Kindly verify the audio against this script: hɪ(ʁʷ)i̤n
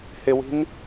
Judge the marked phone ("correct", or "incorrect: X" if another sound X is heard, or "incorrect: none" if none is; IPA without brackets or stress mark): incorrect: w